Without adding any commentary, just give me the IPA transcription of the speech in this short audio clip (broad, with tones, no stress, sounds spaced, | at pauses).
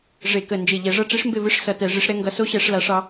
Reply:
ʐ e˧˩˧ k ə˧˩ n d͡ʒ e˧˩ ʎ ɛ˧˩˧ ʐ ʌ˥˨ ʈ͡ʂ i˦˥ ʂ m b e˥˨ v ɨ˦˥ ʂ s ʌ˧˩ t ɛ˧˩˧ ʐ i˨˦ ʂ ɾ ɛ˨˦ ŋ ɡ ʌ˨˦ s o˦˥ ɕ ɛ˧˩˧ ʂ l a˨˦ ʂ ɑ˨˦